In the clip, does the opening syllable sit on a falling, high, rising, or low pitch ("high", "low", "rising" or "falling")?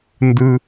low